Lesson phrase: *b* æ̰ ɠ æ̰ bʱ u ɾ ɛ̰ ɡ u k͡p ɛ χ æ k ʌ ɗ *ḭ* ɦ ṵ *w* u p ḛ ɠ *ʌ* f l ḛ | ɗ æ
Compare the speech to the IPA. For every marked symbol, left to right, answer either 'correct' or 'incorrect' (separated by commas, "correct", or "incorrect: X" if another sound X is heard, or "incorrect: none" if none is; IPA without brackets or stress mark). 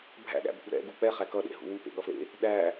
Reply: incorrect: bʱ, incorrect: ḛ, correct, correct